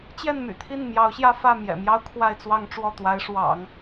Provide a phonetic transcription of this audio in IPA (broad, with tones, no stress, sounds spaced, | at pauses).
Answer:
t͡ɕ j ɛ˥˩ n m y̰˨˩ t̪ʰ i˥˩ n m j ɑ˧˥ ʊ̯ ɕ j ä˥˧ f ä˥˩ m j ɛ̰˨˩ m j ɑ˥ ʊ̯ kʰ w a˥˧ ɪ̯ t͡s w ɑ˥˧ ŋ ʈ͡ʂ w ɔ˥˩ t̪ w a˧˥ ɪ̯ ʂ w ɑ̰˨˩˦ ŋ